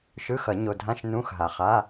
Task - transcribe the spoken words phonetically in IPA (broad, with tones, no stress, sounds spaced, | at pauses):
ʃ ɯ˧˥˧ x ʌ˨˩˦ ɲ o˨ dʱ ã˧˥˧ ʃ n ũ˧˥˧ x ɦ a˨ χ a˧˥˧